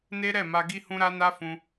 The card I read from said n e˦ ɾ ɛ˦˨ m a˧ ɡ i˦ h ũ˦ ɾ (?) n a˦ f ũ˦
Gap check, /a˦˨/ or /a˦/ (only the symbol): a˦